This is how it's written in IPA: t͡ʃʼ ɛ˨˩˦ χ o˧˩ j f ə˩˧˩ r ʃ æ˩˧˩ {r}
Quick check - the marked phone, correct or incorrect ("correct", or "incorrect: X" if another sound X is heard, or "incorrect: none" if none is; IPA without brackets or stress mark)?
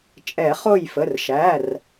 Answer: correct